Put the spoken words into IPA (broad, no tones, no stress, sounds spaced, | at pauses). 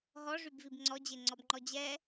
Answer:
ɦ ɔ ʐ y b v i b ŋ͡ǀ ɔ d͡ʑ e ŋ͡ǀ ɔ b ŋ͡ǃ ɔ d͡ʑ ɛ